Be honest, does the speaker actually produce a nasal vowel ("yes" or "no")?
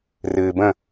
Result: yes